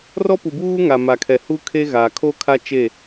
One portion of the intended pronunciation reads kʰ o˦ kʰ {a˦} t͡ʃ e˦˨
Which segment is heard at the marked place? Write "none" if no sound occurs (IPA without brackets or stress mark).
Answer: a˦